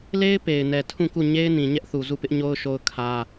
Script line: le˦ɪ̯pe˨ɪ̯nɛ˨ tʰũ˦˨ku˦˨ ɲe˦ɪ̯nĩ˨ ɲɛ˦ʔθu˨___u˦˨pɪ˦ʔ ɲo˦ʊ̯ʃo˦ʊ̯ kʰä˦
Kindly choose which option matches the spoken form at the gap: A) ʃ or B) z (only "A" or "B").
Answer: B